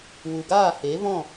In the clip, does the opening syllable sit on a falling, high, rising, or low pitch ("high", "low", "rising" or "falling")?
low